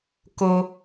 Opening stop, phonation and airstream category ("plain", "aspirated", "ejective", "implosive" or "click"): plain